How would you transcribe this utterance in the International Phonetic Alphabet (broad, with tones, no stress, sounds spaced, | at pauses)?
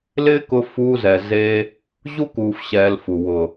l ɪː˦ k ʊ˧ f uː˧ z ɛ˨ z e˧ | ʑ u˦ k uː˧ f ɕ ɛː˧ l f u˨ w ʊ˨